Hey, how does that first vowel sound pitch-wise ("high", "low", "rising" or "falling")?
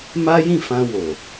high